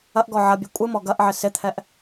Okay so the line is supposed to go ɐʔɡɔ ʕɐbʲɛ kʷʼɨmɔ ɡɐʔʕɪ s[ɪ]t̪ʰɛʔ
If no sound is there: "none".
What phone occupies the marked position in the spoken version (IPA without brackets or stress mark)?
ɪ